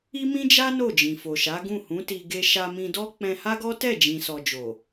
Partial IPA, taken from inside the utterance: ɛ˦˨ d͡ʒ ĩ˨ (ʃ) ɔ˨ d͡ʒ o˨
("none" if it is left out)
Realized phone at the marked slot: s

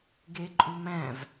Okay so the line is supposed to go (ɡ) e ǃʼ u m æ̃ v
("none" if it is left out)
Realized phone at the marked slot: ɡ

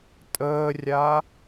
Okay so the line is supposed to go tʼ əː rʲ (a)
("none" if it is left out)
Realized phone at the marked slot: a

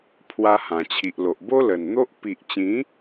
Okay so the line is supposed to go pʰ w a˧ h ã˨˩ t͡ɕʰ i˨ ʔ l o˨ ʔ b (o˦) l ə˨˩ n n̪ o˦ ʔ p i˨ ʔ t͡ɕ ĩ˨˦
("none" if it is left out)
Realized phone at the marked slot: o˦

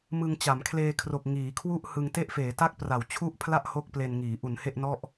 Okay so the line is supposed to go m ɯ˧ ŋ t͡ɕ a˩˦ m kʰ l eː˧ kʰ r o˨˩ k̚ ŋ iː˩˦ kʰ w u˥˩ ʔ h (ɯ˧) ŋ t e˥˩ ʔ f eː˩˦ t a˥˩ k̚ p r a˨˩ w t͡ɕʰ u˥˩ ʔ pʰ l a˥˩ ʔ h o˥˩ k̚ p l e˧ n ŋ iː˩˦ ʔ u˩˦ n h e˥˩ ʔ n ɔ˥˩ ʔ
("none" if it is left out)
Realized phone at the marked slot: ɯ˧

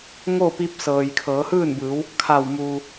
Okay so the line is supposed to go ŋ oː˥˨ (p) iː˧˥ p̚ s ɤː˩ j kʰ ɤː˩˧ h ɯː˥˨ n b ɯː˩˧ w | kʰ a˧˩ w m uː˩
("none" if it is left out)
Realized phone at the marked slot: p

